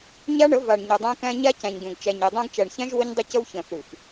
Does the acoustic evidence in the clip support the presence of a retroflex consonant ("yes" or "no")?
yes